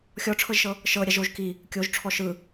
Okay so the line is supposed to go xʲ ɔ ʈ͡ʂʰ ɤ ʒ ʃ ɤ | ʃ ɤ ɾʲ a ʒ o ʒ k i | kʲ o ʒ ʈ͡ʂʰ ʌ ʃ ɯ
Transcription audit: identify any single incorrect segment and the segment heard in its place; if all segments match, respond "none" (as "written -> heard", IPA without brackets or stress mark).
ʌ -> ɔ